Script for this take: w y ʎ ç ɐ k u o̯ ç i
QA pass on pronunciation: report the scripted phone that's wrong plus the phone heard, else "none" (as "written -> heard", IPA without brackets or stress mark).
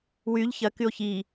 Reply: u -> y